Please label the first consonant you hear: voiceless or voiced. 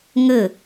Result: voiced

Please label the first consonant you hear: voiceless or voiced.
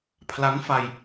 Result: voiceless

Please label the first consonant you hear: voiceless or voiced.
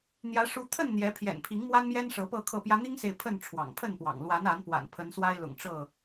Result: voiced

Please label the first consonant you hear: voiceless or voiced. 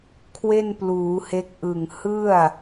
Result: voiceless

